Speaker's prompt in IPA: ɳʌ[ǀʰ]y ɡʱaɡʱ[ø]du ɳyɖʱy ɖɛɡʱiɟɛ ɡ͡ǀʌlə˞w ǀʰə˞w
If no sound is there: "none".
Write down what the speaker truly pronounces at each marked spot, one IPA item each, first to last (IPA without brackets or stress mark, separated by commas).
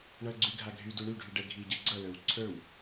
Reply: ɡ͡ǀ, y